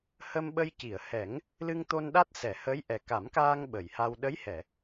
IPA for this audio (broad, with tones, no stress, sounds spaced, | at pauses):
h ə˧ m ɓ ə˧ j c i˨˩˨ ə̯ h ɛ˨˩˦ ŋ | l ɨ˧ ŋ t̪ o˧ n ɗ a˦˥ t̚ s ɛ˨˩˨ h ə˧˥ j ʔ ɛ˨˩ k a˨˩˦ m k aː˧ ŋ ɓ ə˨˩˨ j h a˧ w ɗ ə˧˥ j h ɛ˨˩˨